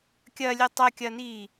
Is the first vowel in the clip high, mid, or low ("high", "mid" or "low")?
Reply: low